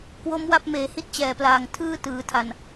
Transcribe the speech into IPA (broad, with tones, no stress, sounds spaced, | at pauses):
k w o˦˥ m w a˦˥ p̚ m eː˩˦ h i˦˥ t̚ t͡ɕ ɛː˨˩ p l aː˨˩ ŋ tʰ ɯː˥˩ t ɯː˩˦ tʰ a˨˩ n